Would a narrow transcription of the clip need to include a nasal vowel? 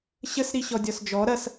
no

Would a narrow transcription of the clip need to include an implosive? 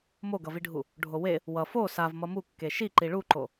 no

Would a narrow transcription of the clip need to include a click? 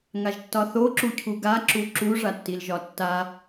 yes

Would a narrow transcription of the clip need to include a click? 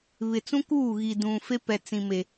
no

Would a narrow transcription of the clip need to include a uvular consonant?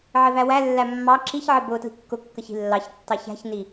no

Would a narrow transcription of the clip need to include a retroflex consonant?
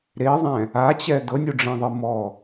yes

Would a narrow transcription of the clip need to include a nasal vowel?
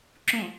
yes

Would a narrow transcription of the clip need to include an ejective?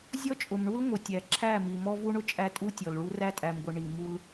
yes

